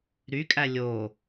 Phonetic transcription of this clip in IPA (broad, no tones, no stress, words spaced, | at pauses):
ɾykʼæ lʲo